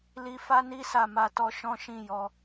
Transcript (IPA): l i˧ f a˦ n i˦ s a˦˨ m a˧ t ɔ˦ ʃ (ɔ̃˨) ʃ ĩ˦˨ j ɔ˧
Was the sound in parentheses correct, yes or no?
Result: no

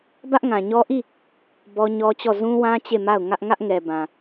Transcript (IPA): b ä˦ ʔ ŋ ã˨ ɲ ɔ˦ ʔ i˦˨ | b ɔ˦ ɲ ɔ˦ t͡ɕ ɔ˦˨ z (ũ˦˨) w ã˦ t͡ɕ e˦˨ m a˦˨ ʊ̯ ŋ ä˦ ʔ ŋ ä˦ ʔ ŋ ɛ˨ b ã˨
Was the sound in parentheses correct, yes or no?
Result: no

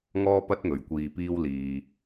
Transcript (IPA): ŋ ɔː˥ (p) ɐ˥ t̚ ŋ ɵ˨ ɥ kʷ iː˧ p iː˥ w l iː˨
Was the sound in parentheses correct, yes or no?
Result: yes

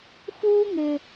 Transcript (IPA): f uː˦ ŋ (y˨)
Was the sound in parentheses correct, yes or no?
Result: no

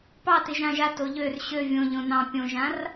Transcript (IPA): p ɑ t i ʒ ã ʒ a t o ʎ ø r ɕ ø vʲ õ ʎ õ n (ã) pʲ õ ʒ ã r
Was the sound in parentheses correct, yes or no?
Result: no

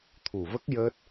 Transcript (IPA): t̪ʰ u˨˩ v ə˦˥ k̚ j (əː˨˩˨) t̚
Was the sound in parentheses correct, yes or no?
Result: no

